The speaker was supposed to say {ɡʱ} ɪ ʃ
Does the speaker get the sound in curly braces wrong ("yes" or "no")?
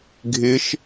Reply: no